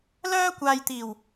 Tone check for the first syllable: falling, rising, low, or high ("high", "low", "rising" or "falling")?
high